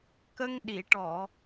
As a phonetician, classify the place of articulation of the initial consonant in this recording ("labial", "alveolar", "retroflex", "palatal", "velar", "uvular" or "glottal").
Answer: velar